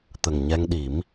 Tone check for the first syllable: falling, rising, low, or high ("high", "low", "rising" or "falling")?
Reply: low